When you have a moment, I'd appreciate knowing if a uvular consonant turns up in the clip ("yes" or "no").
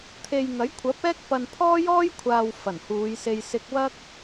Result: no